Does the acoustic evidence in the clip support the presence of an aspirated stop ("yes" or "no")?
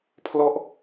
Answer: yes